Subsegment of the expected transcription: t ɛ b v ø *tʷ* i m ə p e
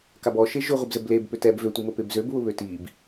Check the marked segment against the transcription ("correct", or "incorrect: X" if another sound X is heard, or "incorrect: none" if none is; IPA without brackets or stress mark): correct